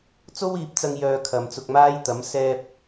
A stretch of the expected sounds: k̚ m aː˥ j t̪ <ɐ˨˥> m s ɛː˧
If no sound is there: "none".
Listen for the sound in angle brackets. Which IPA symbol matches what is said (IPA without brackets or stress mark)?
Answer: ɐ˨˥